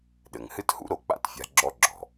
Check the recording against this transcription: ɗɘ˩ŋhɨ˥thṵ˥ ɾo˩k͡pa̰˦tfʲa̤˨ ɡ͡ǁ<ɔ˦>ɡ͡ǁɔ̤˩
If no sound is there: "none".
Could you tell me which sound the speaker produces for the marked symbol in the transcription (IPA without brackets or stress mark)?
ɔ˦